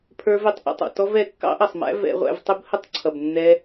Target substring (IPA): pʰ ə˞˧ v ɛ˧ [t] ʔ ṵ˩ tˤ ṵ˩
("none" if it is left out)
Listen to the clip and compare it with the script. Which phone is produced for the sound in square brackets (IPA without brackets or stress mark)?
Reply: tˤ